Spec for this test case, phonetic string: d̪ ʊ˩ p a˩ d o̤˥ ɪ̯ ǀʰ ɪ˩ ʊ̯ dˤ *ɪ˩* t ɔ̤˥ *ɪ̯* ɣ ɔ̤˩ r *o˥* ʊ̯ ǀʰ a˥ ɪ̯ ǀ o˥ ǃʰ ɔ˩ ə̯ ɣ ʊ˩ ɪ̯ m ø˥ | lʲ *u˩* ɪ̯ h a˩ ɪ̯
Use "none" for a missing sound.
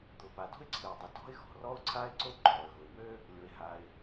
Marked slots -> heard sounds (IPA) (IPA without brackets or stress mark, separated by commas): ɪ˩, ɪ̯, ɔ˥, o˩